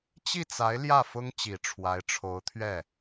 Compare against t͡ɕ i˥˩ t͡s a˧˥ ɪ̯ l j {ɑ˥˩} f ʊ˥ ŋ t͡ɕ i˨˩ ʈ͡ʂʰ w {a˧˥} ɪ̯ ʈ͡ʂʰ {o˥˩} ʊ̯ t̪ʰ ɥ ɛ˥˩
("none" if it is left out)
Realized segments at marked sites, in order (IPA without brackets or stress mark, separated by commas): ä˥˩, a˧˥, o˧˥